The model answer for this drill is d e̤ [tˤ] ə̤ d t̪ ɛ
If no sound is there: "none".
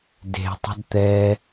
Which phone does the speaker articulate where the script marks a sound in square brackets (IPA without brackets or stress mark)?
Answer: tˤ